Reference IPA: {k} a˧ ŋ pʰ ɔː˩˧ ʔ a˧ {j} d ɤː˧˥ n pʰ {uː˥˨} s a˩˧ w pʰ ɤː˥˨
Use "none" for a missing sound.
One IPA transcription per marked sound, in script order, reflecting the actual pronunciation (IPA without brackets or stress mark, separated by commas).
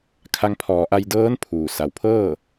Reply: kʰ, j, uː˩